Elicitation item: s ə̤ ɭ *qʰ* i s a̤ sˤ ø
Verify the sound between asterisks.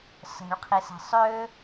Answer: correct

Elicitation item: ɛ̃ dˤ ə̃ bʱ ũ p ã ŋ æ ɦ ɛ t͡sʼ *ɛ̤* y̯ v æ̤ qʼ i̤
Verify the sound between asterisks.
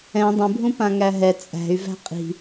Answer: incorrect: æ̤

